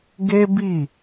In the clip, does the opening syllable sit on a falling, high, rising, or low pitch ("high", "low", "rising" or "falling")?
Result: high